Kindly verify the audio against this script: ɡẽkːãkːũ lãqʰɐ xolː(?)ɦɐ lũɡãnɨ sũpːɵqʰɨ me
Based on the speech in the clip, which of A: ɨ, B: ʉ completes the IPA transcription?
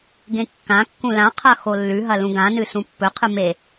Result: B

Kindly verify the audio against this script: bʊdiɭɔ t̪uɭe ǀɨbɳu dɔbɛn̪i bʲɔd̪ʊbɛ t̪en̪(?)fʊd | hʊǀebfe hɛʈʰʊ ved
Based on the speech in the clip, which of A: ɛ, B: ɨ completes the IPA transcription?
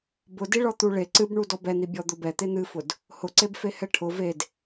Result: B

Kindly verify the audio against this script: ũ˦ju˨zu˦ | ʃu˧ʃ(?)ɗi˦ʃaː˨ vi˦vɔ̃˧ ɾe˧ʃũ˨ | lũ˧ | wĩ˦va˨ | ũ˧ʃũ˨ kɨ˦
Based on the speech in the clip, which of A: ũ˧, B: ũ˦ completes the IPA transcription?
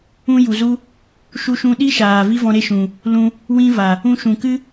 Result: A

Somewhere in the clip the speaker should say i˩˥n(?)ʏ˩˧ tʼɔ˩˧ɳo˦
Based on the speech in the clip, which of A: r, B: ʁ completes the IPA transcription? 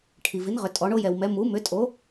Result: B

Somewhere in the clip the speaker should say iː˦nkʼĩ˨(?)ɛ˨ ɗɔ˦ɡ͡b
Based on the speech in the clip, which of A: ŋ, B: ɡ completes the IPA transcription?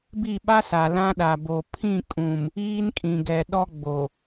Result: B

